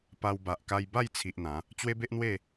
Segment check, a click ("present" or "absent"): absent